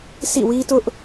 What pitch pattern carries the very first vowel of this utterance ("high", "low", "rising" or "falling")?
falling